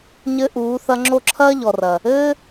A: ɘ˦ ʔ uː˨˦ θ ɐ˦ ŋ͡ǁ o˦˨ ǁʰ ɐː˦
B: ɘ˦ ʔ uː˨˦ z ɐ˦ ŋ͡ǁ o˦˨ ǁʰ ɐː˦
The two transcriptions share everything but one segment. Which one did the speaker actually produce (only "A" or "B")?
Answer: A